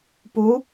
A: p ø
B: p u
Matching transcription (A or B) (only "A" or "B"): B